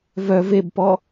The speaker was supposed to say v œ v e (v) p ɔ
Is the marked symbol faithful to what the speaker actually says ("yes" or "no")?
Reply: no